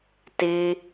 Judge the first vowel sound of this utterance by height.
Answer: high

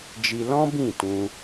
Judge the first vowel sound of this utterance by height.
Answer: high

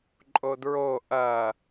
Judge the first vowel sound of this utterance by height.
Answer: mid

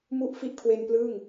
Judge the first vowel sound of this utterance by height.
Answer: high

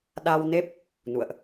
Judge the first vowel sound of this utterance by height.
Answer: low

